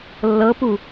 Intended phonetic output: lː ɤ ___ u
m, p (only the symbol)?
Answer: p